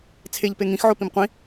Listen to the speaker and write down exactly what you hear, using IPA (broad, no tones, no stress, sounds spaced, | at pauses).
t͡sʰ e ʎ p e ŋ ĩ x ʕ o p ĩ m qʷ ĩ